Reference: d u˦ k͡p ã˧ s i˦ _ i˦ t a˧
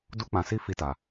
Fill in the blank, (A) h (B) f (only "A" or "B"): B